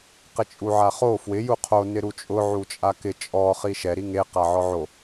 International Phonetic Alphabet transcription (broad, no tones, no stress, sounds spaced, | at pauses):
q ɪ t͡ʃʼ u ʕ a χ o f w ɪ j u qʰ o n ɪ ɾ u t͡ʃʼ ʊ ʕ u t͡ʃʼ a k ɪ t͡ʃʼ ɔ χ i ʃ ɛ ɾ i ŋ e q a ʕ ɔ ʕ o